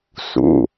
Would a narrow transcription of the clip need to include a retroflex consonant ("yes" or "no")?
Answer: no